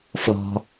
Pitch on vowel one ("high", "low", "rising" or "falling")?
low